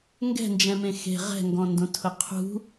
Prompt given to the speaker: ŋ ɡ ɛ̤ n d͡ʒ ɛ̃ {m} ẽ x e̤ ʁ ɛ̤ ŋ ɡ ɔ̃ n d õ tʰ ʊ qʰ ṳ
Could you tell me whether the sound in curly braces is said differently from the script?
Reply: no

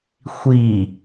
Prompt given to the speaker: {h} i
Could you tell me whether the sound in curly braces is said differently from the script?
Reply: yes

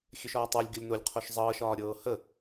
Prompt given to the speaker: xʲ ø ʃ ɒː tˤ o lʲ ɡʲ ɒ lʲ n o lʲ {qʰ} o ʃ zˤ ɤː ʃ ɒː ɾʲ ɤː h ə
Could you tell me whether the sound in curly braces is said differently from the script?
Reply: no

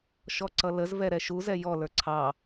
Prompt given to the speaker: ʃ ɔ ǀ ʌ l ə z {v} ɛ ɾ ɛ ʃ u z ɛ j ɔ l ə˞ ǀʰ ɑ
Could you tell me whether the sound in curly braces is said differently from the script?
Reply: no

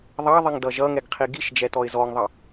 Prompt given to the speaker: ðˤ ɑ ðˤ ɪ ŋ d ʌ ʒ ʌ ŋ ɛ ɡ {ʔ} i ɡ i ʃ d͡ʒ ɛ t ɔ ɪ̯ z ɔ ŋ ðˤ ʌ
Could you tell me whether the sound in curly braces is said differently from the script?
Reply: yes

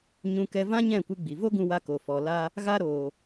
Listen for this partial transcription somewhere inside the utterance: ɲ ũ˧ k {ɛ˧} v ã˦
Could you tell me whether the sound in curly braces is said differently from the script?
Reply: no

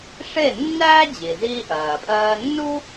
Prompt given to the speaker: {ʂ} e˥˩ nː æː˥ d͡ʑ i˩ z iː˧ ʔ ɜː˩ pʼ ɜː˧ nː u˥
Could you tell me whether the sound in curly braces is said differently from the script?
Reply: no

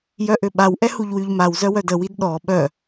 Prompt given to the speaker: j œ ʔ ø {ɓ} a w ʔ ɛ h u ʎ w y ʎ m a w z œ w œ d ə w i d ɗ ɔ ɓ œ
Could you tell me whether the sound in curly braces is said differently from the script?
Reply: no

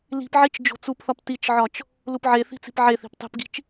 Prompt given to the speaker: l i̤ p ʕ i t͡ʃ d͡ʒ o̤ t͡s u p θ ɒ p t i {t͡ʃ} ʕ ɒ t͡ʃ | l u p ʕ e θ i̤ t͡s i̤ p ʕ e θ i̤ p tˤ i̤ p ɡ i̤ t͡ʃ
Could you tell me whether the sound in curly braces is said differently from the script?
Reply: no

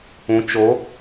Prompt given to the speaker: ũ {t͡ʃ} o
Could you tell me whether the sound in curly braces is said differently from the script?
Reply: no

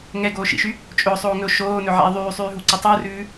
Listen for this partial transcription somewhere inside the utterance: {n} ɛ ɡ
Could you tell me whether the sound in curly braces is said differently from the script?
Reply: yes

